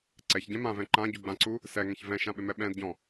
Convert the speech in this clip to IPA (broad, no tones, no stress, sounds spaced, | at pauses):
ǀ ɛ ç ɟ ɛ̃ m ã v ɛ̃ ǃ ã ɟ u ɡ͡b ã ǀ u | s ɛ ŋ ɛ̃ ç v ɛ̃ ʃ ã ɓ ɪ m ɛ ɓ ɛ̃ d ɟ ɔ̃